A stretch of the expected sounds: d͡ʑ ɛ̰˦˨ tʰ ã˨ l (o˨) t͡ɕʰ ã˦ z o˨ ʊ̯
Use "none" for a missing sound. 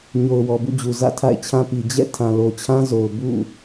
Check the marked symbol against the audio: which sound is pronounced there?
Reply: o˨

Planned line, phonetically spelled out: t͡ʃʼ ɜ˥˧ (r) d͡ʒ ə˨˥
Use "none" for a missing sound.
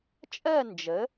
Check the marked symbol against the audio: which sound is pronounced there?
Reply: n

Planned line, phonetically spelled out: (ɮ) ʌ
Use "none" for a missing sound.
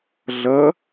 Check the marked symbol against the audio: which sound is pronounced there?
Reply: ɮ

